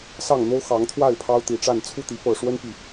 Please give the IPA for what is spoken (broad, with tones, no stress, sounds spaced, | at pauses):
s ɑ˥˨ ŋ n̪ o˦ ʊ̯ x ɑ˨˦ ŋ t̪ʰ w a˥˨ ɪ̯ pʰ ɑ˦ ʊ̯ t̪ i˨˩ ʈ͡ʂ a˥˨ n t͡sʰ u˥˨ t̪ i˨˦ p ɤ˨˩ ʂ w ə˦ n p i˨˩